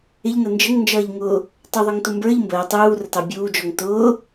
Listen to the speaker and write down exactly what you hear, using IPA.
ɪ ʎ n ə n d͡ʒ ə ŋ n d͡ʒ ʌː ʎ ŋ ʊː | tˤ u ðˤ ɪ ŋ t ʊ m b ə˞ ʎ m b əː tˤ uː r ə t ɑ bʲ uː d͡ʒ ɔ ŋ t ʊː

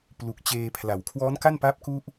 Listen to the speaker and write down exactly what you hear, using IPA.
p l u˨˩ k̚ t͡ɕ eː˧ pʰ l a˩˦ w kʰ w ɔː˦˥ n k a˥˩ n p a˦˥ p̚ k u˥˩ ʔ

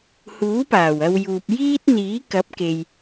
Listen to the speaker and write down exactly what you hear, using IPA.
h uː˨˥ p aː˨˩ w ɐ˧ w j uː˨ p̚ j iː˥ t̚ n̪ iː˨˥ k ɐ˨˥ p̚ k e˨ j

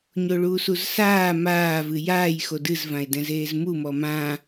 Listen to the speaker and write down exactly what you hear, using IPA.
ɲ o ɭ uː s u z s aː m aː v ɨ j aː j x o d ɨ z v ã e̯ d ɛ̃ z eː z m u m ɔ m ã

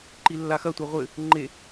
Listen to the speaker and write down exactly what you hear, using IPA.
ǃ i lː a x ɐ tʷ a ʁʷ ɘ | ŋ͡ǃ e

